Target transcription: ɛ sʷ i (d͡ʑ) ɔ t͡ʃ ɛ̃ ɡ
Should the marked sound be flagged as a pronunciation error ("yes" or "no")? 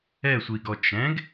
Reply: yes